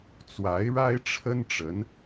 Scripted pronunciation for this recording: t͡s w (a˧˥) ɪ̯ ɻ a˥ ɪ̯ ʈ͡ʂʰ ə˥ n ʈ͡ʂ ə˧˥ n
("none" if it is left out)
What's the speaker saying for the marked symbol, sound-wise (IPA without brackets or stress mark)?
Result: a˧˥